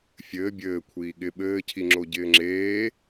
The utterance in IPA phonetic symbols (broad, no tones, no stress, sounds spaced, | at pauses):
fʲ ɘː bʲ ɘː kʷʰ iː ɠ ɪ ɓ ɘː cʰ i ŋ͡ǁ o ɟ ɪː ŋ͡ǁ eː